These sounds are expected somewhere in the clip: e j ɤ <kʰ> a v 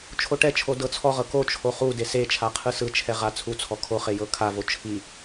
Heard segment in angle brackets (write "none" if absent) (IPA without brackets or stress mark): kʰ